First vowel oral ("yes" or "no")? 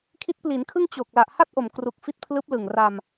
yes